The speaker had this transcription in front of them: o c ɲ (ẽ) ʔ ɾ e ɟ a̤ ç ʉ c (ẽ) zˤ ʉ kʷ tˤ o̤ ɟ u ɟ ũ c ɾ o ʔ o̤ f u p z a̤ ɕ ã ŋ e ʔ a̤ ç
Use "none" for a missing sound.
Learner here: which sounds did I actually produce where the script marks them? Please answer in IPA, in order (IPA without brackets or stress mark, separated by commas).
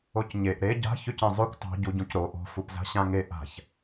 e, ẽ